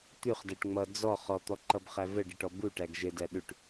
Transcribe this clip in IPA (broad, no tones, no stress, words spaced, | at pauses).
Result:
t̪ʉχdæʈ ŋ͡mʌ d͡zɔ χɔt̪ɔǃʌbχæ vəɖəʈɔ buʈæɡ ʒɘdæ ɗʉʈ